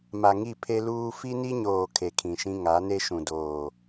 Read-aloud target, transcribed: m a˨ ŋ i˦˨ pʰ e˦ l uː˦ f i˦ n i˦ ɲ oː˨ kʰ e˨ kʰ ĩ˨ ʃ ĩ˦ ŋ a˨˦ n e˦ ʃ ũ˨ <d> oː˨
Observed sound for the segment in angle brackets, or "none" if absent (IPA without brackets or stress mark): d